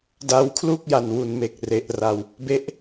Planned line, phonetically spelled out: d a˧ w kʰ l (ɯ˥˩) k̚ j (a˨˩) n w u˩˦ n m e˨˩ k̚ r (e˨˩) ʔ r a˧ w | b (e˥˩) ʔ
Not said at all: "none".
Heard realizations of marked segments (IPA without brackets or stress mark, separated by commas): u˥˩, a˨˩, e˨˩, e˦˥